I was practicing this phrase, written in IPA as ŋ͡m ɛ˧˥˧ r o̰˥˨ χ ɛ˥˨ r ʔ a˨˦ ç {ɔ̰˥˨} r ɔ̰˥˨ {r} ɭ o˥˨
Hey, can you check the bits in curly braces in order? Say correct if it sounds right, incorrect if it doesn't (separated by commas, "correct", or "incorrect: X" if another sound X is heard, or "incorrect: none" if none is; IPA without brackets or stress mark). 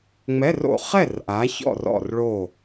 correct, correct